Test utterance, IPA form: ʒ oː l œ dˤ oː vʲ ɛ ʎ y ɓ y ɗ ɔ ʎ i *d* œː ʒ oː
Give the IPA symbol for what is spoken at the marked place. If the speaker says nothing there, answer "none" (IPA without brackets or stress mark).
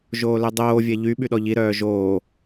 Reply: ɾ